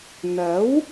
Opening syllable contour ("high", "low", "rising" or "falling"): rising